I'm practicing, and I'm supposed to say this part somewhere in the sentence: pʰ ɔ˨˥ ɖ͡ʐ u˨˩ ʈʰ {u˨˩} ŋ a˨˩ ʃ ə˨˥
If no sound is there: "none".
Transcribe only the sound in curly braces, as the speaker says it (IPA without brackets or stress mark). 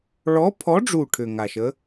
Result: ʏ˨˩